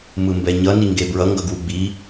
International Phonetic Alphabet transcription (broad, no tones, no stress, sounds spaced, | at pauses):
m ɯ m b ɛ ɲ ʌ n i ŋ ɡ e b ɹ ʌ ŋ ɡ ʌ ɡ w u ɡ͡b i